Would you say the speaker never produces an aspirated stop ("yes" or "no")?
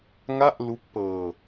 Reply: yes